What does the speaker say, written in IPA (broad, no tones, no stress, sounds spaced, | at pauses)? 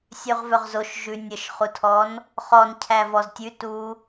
sʲ ʉ ʁ v œ ʁ z o ʃ ʒ ʉ nʲ ə ʃ χ u tʰ ɔ n | χ ɔ n cʰ æ v ɔ z tʲ ʉ t u